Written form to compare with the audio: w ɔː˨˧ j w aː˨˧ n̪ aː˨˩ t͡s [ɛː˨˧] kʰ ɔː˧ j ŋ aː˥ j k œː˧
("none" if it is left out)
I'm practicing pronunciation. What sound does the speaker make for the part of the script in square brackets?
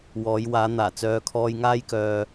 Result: œː˨˧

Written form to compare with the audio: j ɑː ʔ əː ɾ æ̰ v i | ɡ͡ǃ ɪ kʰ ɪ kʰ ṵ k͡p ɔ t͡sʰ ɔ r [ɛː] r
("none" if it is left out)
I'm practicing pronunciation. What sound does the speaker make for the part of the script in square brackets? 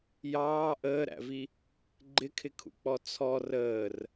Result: əː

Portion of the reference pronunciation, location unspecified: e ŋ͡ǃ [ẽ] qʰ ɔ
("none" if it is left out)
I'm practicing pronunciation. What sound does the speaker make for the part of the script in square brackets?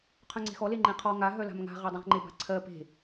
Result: ẽ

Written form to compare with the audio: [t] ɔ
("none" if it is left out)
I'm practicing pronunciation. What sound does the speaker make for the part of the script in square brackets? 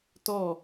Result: t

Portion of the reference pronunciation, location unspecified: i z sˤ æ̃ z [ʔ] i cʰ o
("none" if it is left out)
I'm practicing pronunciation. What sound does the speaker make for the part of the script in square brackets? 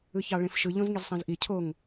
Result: ʔ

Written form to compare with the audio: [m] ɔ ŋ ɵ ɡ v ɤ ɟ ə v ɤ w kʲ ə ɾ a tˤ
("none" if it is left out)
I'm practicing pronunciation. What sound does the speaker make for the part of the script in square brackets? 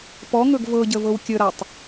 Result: p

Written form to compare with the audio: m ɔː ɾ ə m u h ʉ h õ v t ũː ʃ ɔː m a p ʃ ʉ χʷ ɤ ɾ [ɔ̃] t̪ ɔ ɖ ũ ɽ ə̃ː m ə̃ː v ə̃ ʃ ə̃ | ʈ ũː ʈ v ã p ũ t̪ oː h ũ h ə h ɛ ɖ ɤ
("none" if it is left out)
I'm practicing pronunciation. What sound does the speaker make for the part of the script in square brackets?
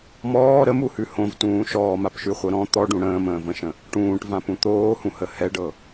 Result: ɔ̃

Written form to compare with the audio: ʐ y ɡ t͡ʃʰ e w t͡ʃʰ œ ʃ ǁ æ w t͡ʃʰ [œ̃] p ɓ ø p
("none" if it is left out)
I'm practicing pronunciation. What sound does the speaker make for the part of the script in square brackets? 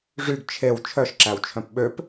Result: œ̃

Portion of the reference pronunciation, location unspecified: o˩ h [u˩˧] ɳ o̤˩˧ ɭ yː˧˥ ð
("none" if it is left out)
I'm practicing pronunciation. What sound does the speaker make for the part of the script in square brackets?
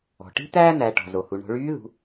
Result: u˩˧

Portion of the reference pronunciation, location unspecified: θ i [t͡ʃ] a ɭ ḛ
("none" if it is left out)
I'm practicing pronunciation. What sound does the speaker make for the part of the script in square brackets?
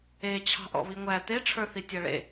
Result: tʲ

